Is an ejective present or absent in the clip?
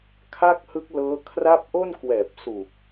absent